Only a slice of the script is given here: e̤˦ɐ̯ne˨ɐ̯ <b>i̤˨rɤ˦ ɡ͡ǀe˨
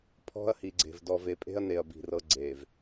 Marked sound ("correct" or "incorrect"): correct